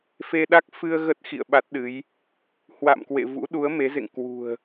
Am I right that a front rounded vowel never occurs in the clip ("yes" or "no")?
yes